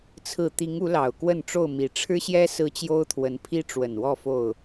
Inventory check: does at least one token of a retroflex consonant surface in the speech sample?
yes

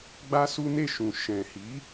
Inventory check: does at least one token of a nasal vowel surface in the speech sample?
yes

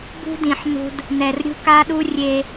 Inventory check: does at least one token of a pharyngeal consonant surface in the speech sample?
yes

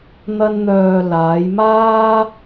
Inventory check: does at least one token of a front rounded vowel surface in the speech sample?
yes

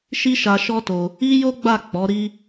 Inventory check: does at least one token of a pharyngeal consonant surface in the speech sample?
no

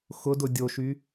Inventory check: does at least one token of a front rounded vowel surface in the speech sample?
yes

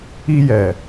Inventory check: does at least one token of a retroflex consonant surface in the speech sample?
no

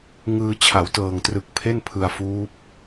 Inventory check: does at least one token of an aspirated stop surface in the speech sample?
yes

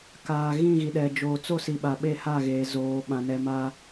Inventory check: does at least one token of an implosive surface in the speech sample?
yes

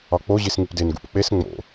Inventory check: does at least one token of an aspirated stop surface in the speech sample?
no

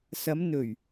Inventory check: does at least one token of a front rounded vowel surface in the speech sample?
no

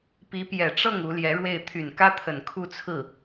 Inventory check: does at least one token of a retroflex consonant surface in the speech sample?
yes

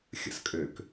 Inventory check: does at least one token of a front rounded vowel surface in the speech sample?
yes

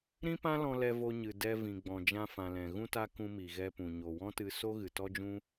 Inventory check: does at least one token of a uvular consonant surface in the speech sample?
no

